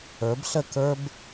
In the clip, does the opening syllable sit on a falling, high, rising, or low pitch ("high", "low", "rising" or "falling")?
rising